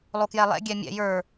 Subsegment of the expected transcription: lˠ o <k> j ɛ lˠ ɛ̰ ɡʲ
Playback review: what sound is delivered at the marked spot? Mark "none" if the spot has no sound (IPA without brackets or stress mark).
k